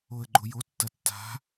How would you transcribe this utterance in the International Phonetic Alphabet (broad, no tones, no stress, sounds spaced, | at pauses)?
o ə̯ ɡ͡ǃ o j o tː ɐ tː a̤